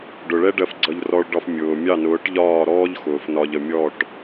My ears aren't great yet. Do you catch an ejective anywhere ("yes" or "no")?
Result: no